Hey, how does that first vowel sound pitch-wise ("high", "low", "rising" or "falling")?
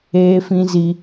high